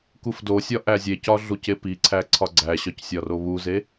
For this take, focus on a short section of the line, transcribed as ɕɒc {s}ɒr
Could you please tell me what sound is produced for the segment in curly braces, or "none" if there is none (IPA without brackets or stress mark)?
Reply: sʲ